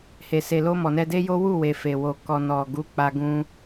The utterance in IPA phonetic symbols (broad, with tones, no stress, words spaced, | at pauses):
he˨se˨lo˧ mɔ˨nɛ˧de˦jo˦ wu˦˨we˨ fe˨wo˨ kɔ˨nɔ˨ɡu˨˦k͡pa˧ ɡũ˧